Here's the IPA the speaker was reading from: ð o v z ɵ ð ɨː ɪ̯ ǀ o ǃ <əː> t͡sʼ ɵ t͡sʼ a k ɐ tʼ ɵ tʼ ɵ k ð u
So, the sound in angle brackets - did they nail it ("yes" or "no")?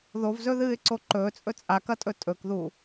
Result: no